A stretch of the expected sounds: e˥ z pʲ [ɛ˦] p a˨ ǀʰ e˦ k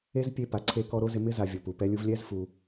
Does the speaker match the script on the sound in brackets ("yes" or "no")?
no